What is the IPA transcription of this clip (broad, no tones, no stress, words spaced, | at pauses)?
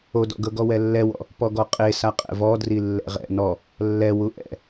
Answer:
odɔ̰ɡɤɡɔ wɛlːɛwɔ̰ | pɔɡɔqʼe saqʼɛ̰vɔdri lːɛ̰ʁɛ̰ nɔ | lːɛ wuʔɛ̰